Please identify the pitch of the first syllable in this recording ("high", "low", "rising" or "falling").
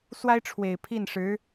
high